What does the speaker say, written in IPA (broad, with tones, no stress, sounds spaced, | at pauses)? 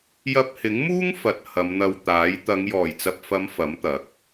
j ɐ˧ p̚ h ɪ˨˥ ŋ m uː˥ ŋ f ɐ˨ t̚ h ɐ˨˧ m n̪ ɐ˧ w t̪ aː˨˥ j t̪ ɐ˨˧ ŋ j ɔː˨˩ j t͡s ɐ˨ p̚ f ɐ˨˧ m f ɐ˨˥ m t̪ ɐ˨˥ k̚